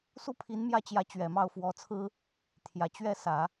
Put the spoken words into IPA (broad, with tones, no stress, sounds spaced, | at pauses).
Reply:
s u˥˩ pʰ i˧˥ n m j ä˥˩ t͡ɕ j ä˧˥ t͡ɕ ɥ ɛ˨˩ m ɑ˥˩ ʊ̯ f w ɔ˧˥ t͡sʰ ɹ̩˥ | t̪ʰ j ä˨˩ t͡ɕ ɥ ɛ˥˩ s ä˨˩˦